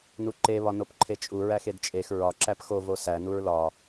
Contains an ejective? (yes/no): yes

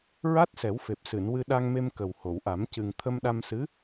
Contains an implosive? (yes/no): yes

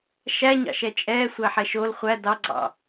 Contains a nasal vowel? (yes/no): no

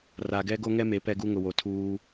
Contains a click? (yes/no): no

